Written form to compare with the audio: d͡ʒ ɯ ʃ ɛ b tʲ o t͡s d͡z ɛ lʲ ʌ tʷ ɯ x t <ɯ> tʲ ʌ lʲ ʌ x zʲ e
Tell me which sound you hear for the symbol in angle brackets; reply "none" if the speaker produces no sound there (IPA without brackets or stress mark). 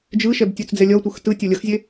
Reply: ɯ